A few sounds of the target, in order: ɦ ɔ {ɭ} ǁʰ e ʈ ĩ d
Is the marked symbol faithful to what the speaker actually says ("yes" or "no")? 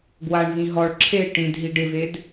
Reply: yes